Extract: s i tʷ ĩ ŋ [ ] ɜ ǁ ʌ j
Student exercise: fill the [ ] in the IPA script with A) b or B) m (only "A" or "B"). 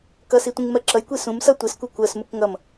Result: B